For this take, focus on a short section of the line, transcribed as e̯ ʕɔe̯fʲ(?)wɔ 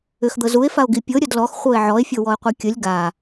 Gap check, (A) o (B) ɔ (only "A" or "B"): A